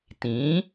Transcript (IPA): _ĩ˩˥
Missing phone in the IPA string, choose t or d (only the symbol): t